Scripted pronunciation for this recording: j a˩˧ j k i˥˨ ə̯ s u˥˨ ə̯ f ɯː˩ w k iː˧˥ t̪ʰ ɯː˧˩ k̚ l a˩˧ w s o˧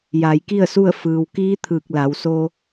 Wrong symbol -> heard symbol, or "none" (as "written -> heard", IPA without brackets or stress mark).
none